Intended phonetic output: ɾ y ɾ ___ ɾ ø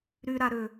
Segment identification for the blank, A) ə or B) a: B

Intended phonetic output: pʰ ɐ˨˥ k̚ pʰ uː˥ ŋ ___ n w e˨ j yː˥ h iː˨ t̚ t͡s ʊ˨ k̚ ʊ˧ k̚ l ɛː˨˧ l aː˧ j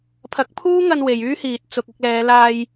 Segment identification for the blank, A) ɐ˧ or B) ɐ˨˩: A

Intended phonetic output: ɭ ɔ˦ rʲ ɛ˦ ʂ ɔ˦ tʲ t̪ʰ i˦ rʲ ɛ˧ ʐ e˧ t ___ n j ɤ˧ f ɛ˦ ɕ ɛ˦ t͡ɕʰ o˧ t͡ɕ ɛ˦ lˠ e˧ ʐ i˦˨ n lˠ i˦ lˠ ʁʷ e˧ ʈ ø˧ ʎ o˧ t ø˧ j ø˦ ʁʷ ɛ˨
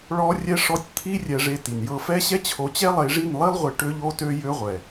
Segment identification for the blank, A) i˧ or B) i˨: B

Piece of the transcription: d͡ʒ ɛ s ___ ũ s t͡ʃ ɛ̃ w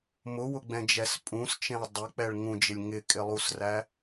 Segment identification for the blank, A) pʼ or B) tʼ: A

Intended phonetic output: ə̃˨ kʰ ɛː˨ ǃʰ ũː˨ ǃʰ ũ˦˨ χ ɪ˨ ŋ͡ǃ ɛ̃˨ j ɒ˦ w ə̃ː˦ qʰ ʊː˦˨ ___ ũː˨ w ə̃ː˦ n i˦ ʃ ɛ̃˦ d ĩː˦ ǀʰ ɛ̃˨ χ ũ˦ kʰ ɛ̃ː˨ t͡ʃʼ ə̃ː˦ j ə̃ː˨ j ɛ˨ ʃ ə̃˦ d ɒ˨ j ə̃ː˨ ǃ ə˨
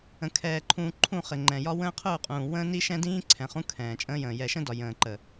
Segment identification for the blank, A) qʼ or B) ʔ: A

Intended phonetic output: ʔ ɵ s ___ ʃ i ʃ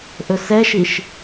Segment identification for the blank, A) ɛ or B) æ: A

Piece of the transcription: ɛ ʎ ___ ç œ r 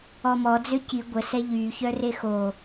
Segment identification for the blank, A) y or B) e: A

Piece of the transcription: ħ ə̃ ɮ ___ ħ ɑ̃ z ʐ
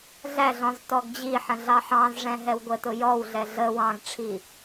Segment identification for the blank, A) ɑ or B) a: A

